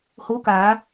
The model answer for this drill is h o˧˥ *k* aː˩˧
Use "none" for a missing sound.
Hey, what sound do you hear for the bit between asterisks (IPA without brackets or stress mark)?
k